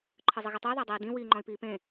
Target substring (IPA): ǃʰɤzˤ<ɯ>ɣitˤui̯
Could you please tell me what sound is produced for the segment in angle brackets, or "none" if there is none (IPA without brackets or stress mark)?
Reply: ɯ